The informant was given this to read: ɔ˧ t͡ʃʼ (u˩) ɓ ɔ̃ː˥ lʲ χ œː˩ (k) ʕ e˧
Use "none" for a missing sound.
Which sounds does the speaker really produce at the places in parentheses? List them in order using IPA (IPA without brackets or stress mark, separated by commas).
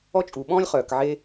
u˩, k